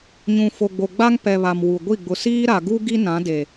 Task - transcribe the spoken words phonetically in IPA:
ɲ ũ˨ f o˨ ɡ͡b o˨ ɡ͡b a˦ ŋ p ɛ˨ β a˨ m w u˨ ɡʷ i˦˨ ɡ͡b ʊ˨ s iː˦ ɾ a˨ ɡ u˦ ɡ i˦ n ã˨˦ d e˨

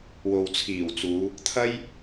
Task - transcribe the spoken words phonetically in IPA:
w o˨ w t͡sʰ iː˨˩ w t͡s uː˨˧ | t̪ʰ ɐ˥ j

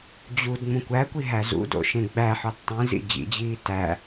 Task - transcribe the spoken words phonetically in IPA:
d͡ʑ u d ŋ͡m ũ kʷ æ kʷ i ɦ æ z ṵ d o̰ ʃ ẽ ɡ͡b æ ħ ɒ d tˤ ĩ z ḭ d͡ʑ ḭ d͡ʑ iː t æ

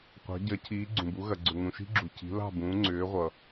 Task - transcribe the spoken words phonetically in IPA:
qʷ ɑ̤˩˥ ɟ ɐ˩˥ cʰ iː˩˥ ɡ͡ǀ ũ˩ b u˩˥ ɣ ɐ˩ ɡ͡ǀ ʏ˩ ŋ ũ˩ ʃ i̤˦ ɡ͡ǁ u˩ cʰ i̤˩˥ l ɑ̤˥˩ b ũː˩˥ ŋ͡ǀ ʏː˩˥ ʁʷ ʌ˩

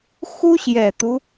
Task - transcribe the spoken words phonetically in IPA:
x u˥ ɕ j ɛ˨˩ t̪ u˦

